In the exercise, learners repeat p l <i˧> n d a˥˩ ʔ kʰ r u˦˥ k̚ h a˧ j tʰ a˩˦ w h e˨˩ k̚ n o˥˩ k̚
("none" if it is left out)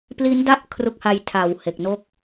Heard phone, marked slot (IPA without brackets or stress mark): i˦˥